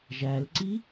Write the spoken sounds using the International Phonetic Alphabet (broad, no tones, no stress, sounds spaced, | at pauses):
ʒ æ l ǀ i